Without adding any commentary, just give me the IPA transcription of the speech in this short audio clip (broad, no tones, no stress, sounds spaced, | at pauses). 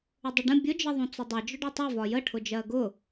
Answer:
ʊ dˤ ʊ ɖ ə̃ bʲ ʊ d͡ʒ ə ðˤ ũ t͡s ʊ dˤ ʌ d͡ʒ ʊ ɖ u tˤ ɛ v ɒ j ə ʈʰ ʊ d͡ʒ ɜ ɡ ʊ